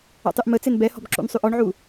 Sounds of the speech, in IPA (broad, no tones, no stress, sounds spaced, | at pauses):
ɔ̰ tˤ y ʔ m ə t͡s e n b ɛ h ɔ̤ b ǁ ṵ n sˤ y ʔ ɔ ɳ ʕ u